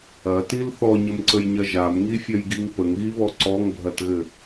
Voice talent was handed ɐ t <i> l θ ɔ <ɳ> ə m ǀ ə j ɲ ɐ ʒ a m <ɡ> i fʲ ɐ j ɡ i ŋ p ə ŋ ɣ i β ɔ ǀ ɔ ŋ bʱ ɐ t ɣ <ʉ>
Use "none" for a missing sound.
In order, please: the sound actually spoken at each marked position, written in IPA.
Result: i, ɲ, ŋ, ɘ

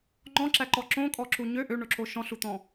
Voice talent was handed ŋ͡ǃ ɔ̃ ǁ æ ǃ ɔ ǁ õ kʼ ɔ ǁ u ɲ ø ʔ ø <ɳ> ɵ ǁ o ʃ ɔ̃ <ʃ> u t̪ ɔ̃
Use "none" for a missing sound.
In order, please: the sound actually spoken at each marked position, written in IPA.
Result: ɳ, ɬ

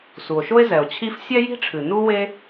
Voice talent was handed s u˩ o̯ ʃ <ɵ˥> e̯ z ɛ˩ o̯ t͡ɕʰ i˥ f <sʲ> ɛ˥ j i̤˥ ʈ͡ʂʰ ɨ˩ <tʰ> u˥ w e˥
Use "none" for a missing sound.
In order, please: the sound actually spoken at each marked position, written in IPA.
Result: o˥, sʲ, n

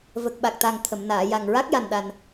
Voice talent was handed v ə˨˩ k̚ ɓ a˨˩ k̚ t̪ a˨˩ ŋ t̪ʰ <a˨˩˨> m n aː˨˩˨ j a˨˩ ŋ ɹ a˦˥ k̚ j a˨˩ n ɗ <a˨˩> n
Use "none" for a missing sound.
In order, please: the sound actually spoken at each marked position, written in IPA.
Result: ə˨˩˨, a˨˩

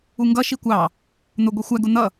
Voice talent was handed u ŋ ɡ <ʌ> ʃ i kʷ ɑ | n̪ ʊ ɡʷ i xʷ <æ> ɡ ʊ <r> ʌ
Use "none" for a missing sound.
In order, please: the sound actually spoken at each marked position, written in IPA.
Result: ʌ, æ, n̪

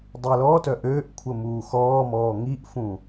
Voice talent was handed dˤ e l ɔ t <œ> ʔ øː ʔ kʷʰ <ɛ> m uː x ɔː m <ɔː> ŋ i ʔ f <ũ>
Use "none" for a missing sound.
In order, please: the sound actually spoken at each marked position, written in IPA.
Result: œ, ə, ɔː, ũ

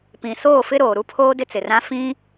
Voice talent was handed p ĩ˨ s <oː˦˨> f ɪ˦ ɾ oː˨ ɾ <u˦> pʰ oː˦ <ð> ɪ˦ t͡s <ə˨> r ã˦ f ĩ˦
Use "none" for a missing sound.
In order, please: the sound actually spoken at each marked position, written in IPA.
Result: oː˦˨, u˦, d, ɪ˨

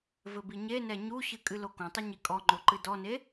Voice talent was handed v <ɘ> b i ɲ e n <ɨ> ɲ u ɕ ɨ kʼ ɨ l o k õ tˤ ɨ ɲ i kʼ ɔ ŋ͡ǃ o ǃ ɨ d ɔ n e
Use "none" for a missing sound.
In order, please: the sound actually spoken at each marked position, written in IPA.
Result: ɘ, ɛ

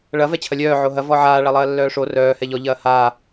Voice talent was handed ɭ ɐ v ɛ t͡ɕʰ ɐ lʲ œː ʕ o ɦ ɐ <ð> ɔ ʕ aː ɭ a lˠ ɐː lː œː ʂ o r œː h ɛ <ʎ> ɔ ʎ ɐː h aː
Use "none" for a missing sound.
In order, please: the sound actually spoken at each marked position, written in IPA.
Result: v, ʎ

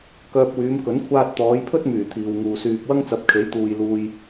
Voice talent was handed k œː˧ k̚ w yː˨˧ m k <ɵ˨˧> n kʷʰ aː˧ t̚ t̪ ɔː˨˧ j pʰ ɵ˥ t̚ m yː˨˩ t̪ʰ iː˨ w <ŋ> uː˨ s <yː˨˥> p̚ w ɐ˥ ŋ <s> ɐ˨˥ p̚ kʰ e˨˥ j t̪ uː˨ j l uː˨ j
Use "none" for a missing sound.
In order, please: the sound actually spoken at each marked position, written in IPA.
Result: ɵ˨˥, ŋ, yː˧, t͡s

